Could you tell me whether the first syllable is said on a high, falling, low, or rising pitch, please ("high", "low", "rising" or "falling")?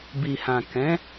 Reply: low